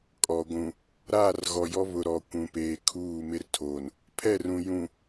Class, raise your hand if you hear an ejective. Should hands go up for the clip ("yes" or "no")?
yes